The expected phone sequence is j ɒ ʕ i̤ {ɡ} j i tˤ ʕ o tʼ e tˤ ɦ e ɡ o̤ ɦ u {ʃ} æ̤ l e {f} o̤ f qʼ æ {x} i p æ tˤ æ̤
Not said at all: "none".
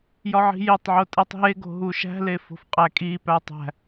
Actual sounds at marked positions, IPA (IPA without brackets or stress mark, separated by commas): none, ʃ, f, kʼ